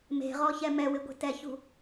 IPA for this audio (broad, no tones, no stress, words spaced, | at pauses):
me̤ʁɔçɛ mɛwɪɡʷe̤ tɛçṳ